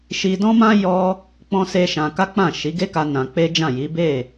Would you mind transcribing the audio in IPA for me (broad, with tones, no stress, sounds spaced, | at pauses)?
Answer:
ʃ i˧ d ɔ̃˦ m ã˦ j ɔ˦ | k͡p ɔ̃˦ s e˦ ʃ ã˧ k a˦ k͡p ã˦˨ ʃ i˨˦ ɡ e˦ k a˧ n ã˧ k͡p e˦ d͡ʒ ã˦˨ j i˨˦ b e˦˨